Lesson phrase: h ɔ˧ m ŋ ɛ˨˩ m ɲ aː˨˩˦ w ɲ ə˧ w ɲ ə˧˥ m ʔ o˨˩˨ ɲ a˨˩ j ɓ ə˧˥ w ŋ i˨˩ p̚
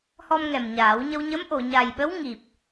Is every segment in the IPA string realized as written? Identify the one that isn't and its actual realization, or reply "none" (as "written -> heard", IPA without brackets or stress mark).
none